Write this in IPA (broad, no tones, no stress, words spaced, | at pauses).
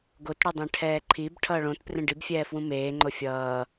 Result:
ɡot ɽʌdˤẽʈʰɛːǃʰib ʈʰʌːɭõt prẽɖib fʲɛːfwũmeː ŋ͡ǃofʲʌː